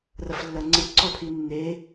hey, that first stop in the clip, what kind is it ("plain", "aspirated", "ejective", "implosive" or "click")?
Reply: click